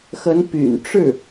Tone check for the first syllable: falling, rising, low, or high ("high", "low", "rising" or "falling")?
rising